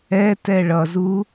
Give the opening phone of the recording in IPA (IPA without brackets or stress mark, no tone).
ɛ